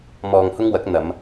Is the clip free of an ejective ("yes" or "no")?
yes